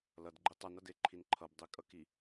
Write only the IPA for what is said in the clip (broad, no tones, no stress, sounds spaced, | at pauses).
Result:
l ʌ d ɡ͡ǃ i tˤ ʌ n ʌ d e ǃʰ i n ǃʰ ʌ b dˤ i kʼ ʌ k i